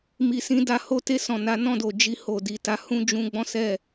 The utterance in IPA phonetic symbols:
m i˨ s ĩ˨˦ d a˧ h o˧ t e˧ s ɔ̃˨ n a˨˦ n ɔ̃˦˨ d o˨ d͡ʒ i˧ h o˨ d i˨ t a˨˦ h ũ˦ d͡ʒ ũ˦ ɡ͡b ɔ̃˦ s ɛ˦˨

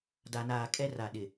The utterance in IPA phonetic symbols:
d a˨ n aː˨ kʼ ɛ˦ r a˨ ɗ ɪ˨

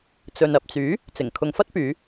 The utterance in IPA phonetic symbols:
t͡s ɵ˨ n ɐ˨ p̚ t͡s yː˨˥ | t͡s ɪ˨˩ ŋ kʰ ʊ˨ ŋ f ɐ˥ t̚ p yː˨˧

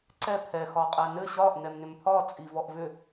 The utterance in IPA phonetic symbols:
ǀ ɛ pʰ ɛ x ɒ qʼ ɛ n ɘ ɕ ɒ ʔ n ɛ m n ʏ m pʰ ɒ t͡sʼ i v ɔ ʔ v ʏ

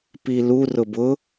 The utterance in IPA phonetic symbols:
p i l u r ʊ b ʊ

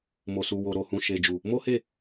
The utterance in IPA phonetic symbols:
m o˨ s u˨ w o˨ ɾ o˨ h ũ˨ ʃ e˨ d͡ʒ u˨ | m o˦ h e˦˨

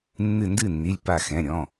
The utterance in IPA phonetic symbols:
nː ɨ˧˩ n d ɨ˥˩ nː i˩˧˩ lʲ p a˧˩ x ɛ̃˩˧˩ ɾʲ ɔ̃˩˧˩

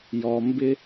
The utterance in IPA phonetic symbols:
j ɔ˩ m b ɪ˧

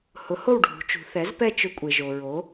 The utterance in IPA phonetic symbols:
h ʊ˩˥ h o˥˨ w ɖʱ ṳ˩˧ t͡ʃ ṳ˩˧ θ ɛ˩˥ z p ɛ˥˨ t͡ʃ ʊ˦ kʷʼ e˩ ʒ o˩ ɹ o˩˥

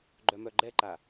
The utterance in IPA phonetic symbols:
ɡ͡ǃ œ m œ ɡ͡ǃ ɛ ǃ a

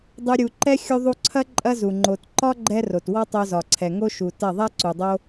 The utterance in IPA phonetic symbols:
dˤ u˧ ɾʲ u˨ ǃ ɛ˧ xʲ u˧ ðˤ u˧ ǀʰ ɐ˦ ǃʼ ɐ˦ z u˨ ŋ͡ǃ o˨ t ǃ ɒ˦ ɡ͡ǃ ɛ˧ r o˨ t w ɒ˦ tˤ o˧ z ɒ˨ ǀʰ ɛ˨ ŋ o˦ ʃ u˨ t ɐ˦˨ ðˤ ɛ˦ ǀ u˨ dˤ o˦

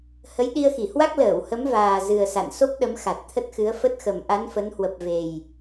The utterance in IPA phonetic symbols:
h ə˨˦ j ɗ i˧ ə̯ x i˧˩ h w a˦˥ k̚ l əː˧˩ w h ə˨˦ m v aː˨˩ z ɨ˨˩ ə̯ s a̰˧˨ n s o˦˥ p̚ ɗ ə˨˦ m x a˨˩ t̚ t̪ʰ ə˦˥ t̚ x ɨ˨˦ ə̯ f ə˦˥ t̚ x ə˨˩ m ʔ a˨˦ n f ə˨˦ n h w ə˨˩ p̚ v e˨˩ j

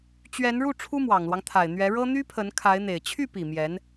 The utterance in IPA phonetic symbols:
t͡ɕ ɥ ɛ˧˥ n ɻ u˥˩ ʈ͡ʂʰ u˥ m w ɑ˨˩ ŋ l w ɑ˦ ŋ t̪ʰ a˨˩ ɪ̯ n̪ ɥ ɛ˧˥ ɻ ɤ˥ n̪ y˥ pʰ ə˧˥ n kʰ a˧˥ ɪ̯ n̪ e˨˩ ɪ̯ t͡ɕʰ y˥˩ p i˨˩ m j ɛ˧˥ n

